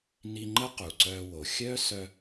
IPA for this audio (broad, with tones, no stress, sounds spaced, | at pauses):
n i˧ ŋ͡ǃ ə˦ q u˨ ǀ œː˧ w o˨ xʲ œ˦ s œ˧